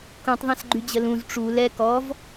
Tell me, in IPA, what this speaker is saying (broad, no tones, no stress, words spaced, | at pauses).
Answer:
kũtˤðˤãsɡ͡ǃyd͡ʑə lũz ʈ͡ʂu lɛ kɔv